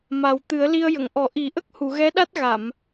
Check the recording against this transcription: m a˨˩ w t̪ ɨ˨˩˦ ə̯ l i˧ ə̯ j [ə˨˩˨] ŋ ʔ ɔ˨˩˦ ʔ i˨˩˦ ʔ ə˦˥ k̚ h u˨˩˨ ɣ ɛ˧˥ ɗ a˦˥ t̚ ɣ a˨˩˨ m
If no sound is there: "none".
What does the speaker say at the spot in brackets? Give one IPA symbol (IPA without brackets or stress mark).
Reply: ə˨˩˨